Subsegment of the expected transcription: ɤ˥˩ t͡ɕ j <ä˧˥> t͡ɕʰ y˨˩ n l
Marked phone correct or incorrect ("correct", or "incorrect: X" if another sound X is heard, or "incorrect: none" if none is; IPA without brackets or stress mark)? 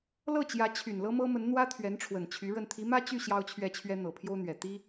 correct